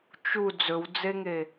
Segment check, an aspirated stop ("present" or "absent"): absent